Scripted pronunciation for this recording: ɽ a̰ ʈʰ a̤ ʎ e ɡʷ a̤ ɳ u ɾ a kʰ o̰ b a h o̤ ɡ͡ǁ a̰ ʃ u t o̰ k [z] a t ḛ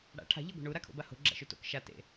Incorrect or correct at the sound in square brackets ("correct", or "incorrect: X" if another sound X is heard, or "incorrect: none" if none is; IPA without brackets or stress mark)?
incorrect: ʃ